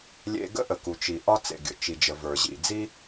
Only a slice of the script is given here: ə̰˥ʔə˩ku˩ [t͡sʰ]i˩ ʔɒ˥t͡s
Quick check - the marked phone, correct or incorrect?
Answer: incorrect